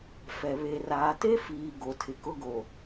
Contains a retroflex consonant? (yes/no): no